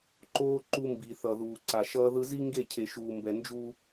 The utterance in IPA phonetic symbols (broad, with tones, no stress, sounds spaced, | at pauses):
ǃ oː˦ ǃ u˦ m b i˨ θ ʌ˨ ð uː˨ ǀ a˨ ʃ ʌː˦ ð ɯ˦ z i˦ ŋ ɡ e˦˨ cʰ e˨ ʃ uː˨ m b ɛ˨ n d͡ʒ u˦